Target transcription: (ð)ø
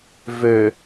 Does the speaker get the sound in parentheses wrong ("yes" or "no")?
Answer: yes